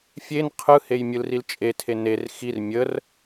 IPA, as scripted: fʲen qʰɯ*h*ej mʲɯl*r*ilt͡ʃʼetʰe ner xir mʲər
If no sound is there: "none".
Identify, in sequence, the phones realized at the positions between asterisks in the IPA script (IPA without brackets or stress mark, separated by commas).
h, r